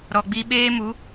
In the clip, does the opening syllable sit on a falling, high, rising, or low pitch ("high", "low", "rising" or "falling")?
low